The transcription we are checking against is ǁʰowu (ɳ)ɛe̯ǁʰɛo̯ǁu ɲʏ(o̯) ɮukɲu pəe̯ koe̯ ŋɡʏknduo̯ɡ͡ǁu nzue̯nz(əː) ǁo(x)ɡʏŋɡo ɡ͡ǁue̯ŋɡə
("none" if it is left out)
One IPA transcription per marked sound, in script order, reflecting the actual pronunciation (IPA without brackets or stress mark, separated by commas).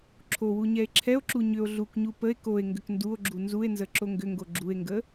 ɲ, o̯, ə, ŋ